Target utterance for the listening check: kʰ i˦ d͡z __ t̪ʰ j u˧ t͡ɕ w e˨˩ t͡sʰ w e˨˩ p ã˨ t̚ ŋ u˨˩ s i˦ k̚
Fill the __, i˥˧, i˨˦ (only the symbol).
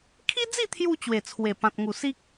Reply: i˥˧